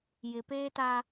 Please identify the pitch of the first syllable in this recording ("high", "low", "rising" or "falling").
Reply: low